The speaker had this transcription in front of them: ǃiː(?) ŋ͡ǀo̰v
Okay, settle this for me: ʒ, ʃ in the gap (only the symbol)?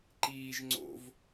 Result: ʒ